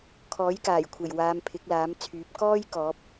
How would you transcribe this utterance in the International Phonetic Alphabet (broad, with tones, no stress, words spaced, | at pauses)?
kʰɔː˨˥jkaː˨˩jkʷʰe˨˩j waː˨˧m pʰɪ˨˥k̚laː˨˥mt͡sʰyː˨˥p̚ kɔː˥j kɔː˨˥p̚